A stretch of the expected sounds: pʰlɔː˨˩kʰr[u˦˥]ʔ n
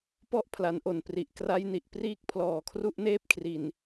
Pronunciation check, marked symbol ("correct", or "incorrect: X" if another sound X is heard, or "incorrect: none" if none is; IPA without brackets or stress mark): correct